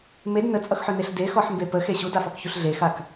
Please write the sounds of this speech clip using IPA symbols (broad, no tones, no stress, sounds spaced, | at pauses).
m e d n ə t͡sʼ ʌ x ħ ɵ n e ɬ d e x ɔ ħ m b e p ə x e ɕ u d a f ɔ k ç u ɬ ɮ e x a k